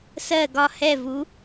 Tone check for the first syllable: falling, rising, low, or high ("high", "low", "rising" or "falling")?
falling